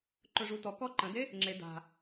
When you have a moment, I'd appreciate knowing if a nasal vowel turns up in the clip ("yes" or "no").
yes